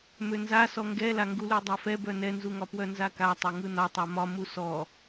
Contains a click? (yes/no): no